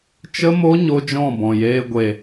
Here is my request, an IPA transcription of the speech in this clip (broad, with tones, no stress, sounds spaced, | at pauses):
t͡ʃ ə˧ m o˧ ɲ o˦ d͡ʒ ɔ̃˦˨ b ɔ̃˨ j eː˧ ɡʷ e˨